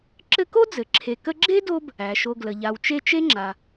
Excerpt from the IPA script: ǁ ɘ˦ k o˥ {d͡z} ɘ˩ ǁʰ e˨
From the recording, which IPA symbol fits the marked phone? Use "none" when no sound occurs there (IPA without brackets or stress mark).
d͡z